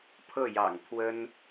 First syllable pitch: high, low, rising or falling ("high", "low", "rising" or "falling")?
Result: falling